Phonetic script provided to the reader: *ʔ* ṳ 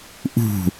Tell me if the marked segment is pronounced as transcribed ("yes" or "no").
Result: yes